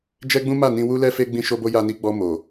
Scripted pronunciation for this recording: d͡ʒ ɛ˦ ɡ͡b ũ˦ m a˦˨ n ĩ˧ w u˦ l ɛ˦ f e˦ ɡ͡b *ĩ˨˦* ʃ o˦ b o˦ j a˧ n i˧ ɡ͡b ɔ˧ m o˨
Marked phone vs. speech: incorrect: ĩ˦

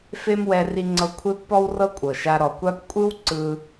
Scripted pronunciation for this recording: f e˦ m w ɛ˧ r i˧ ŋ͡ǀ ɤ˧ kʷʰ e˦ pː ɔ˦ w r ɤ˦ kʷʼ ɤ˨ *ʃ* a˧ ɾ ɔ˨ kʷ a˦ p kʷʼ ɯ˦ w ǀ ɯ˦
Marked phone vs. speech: correct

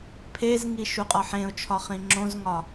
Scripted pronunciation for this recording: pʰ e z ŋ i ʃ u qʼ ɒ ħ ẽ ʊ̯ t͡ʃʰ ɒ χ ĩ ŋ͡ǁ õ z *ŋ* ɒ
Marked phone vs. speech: correct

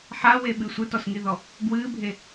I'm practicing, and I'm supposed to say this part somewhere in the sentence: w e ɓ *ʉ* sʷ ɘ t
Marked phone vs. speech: incorrect: ɨ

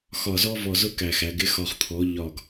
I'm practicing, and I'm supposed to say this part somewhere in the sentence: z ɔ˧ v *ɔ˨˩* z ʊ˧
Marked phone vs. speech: correct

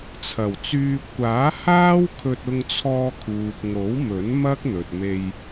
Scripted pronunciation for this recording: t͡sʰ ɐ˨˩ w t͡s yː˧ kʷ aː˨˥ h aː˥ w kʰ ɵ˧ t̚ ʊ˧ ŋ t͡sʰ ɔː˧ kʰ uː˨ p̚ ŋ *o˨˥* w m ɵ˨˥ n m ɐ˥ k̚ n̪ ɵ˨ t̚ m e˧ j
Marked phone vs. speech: correct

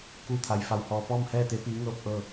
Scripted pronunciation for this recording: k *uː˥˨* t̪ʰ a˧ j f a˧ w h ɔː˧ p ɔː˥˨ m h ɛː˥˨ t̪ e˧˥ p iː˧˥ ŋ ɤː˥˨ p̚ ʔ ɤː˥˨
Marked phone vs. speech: correct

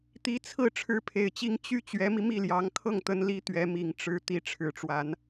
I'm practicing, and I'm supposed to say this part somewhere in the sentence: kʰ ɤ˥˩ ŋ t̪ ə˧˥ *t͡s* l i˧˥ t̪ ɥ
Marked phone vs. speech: incorrect: n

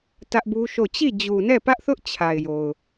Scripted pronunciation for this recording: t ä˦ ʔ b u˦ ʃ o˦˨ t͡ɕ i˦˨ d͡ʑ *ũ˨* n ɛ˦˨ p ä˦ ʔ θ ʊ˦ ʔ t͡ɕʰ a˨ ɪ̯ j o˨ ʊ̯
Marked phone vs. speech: incorrect: u˨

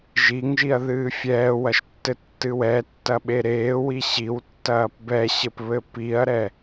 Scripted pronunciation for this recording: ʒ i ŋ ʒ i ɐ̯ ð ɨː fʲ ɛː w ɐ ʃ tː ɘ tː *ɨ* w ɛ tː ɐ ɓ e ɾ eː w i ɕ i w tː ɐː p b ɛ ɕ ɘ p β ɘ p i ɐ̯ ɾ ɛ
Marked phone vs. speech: correct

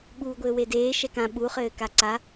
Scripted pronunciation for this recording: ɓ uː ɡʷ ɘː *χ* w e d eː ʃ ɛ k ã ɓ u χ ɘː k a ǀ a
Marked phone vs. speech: incorrect: none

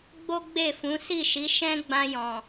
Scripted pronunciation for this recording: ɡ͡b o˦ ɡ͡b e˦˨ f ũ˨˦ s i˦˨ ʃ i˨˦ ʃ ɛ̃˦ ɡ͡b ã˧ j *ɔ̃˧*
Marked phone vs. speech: incorrect: ɔ̃˨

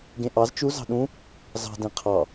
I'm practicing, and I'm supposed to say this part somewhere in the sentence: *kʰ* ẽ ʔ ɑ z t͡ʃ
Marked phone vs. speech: incorrect: ɡ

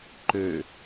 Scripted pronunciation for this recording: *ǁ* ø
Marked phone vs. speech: incorrect: ǃ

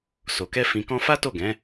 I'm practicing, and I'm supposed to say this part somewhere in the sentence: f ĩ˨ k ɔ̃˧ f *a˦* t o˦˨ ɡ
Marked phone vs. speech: correct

